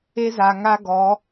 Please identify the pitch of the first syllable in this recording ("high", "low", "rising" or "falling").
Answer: high